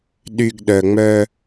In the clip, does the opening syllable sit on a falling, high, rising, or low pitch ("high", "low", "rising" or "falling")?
low